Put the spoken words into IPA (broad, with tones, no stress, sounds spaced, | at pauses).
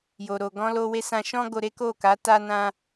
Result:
j o˨ ɾ o˨ ɡ ɔ̃˧ l o˧ w e˧ s ã˨ ʃ ɔ̃˧ ɡ o˧ ɾ e˦ k o˦˨ k a˨˦ t a˧ n ã˧